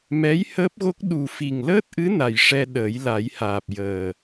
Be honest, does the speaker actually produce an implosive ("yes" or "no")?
yes